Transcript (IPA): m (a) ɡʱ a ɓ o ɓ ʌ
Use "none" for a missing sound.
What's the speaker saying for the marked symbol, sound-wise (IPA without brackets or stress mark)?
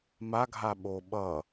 a